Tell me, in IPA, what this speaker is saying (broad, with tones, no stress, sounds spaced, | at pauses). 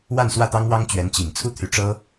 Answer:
w a˥˧ n s w ä˥˩ t̪ ɑ˥ ŋ w ɑ˥ ŋ t͡ɕ ɥ ɛ˧˥ n t͡ɕ i˨˩ ŋ t͡sʰ u˥ t̪ʰ y˧˥ ʈ͡ʂ ɤ˥